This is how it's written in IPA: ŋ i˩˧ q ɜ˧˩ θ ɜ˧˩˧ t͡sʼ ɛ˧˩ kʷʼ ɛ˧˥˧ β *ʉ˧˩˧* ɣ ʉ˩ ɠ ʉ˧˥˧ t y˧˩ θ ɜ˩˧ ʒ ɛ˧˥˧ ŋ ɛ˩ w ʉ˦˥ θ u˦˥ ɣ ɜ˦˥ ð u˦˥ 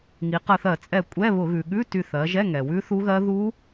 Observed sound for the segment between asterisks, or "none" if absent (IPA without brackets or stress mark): ʊ˧˩˧